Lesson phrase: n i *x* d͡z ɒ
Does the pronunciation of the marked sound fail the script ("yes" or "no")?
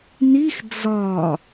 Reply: no